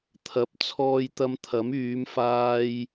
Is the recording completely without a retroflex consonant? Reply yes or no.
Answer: yes